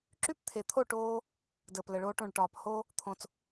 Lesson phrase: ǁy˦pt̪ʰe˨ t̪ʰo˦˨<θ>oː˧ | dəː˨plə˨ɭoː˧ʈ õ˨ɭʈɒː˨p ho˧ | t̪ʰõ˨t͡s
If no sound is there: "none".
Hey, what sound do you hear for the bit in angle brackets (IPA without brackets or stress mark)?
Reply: ʈ